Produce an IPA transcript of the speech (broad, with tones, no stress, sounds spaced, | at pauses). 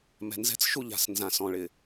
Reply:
m ɛ̤˨ n z ɛ̤˦ t͡s ʃ u˦ ʎ a̤˨ s n z ã˨ s ɔ̃˨ ɭ ɪ˨